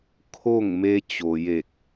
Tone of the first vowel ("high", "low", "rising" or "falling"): falling